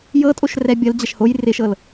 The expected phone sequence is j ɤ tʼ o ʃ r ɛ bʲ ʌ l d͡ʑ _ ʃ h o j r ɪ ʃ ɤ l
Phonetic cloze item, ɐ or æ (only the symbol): ɐ